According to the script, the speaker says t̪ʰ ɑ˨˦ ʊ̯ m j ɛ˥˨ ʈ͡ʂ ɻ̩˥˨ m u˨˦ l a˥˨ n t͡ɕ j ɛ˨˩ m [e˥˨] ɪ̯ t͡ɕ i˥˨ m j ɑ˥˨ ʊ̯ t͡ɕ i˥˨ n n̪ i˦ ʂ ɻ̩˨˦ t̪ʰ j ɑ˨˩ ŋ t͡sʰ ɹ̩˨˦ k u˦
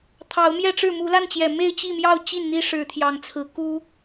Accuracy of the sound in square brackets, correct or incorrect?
correct